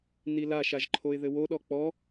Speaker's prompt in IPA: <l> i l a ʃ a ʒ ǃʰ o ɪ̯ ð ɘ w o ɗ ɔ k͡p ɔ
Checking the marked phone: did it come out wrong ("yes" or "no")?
yes